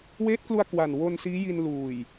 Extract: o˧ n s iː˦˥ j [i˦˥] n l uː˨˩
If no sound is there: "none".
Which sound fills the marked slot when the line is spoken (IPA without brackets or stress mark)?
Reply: i˧